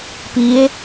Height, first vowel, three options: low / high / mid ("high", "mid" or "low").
high